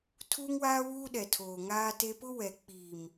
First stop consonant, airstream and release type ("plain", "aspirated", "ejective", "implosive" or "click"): aspirated